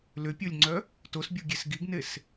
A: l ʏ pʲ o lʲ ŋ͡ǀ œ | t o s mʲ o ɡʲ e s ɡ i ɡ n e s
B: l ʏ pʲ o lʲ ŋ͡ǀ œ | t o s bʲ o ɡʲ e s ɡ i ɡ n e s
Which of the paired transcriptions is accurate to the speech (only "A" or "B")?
B